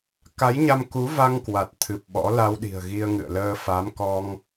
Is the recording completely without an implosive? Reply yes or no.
no